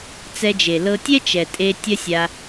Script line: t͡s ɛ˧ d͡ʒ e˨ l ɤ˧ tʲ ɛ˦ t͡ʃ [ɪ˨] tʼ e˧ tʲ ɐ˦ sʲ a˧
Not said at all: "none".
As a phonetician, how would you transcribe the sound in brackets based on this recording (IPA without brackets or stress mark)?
ɛ˨